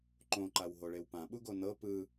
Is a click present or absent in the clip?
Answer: present